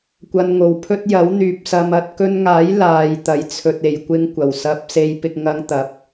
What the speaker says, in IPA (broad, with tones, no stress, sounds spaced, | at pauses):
kʷ ɐ˧ n ŋ o˨ w pʰ ɵ˥ t̚ j ɐ˨˥ w n̪ yː˨ p̚ s ɐ˧ m ɐ˧ t̚ k ɵ˧ n ŋ aː˨˥ j l aː˨ j t̪ ɐ˧ j t͡sʰ ɵ˧ t̚ e˨ j kʷ ɪ˥ ŋ kʷ ɐ˨˩ w s ɐ˧ p̚ s e˧ j p ɪ˧ k̚ ŋ ɐ˧ ŋ t̪ ɐ˨˥ p̚